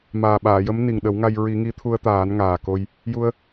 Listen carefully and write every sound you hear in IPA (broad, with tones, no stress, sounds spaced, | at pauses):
m aː˨˩ ɓ aː˨˩˨ j ə˧˥ m n i˨˩ ŋ ɗ ə˨˩˦ w ŋ a˧ j ɹ i˨˩˦ ŋ i˧˥ t̪ʰ u˧ ə̯ t̪ aː˨˩˦ n ŋ aː˨˩ k o˧ j | j u˧ ə̯